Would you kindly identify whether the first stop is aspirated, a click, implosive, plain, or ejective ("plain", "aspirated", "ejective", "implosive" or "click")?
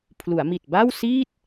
aspirated